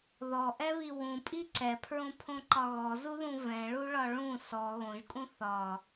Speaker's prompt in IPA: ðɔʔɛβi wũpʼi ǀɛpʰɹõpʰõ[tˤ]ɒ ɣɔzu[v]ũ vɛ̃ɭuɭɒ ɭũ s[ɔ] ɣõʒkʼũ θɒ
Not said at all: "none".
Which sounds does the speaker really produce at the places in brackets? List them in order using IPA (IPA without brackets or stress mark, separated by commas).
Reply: ǃ, ð, ɔ